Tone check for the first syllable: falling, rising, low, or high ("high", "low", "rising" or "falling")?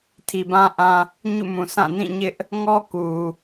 low